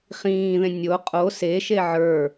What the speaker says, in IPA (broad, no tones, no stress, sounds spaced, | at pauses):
χ ĩː ð ẽ nʲ o qʼ o s e ʃ e ʕ ə˞